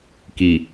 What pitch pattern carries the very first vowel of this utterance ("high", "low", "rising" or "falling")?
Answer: low